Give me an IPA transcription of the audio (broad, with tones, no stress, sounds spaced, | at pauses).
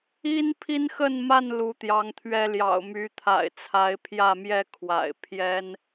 i˦ n pʰ i˦ n x ə˥˨ n m a˥˨ n l u˨˦ t̪ j ɑ˨˦ ŋ t̪ʰ ɥ ɛ˦ l j ɑ̰˨˩ ʊ̯ m y˨˦ t̪ʰ a̰˨˩ ɪ̯ t͡sʰ a˨˦ ɪ̯ pʰ j ä˥˨ m j ɛ˥˨ kʰ w a̰˨˩ ɪ̯ pʰ j ɛ˦ n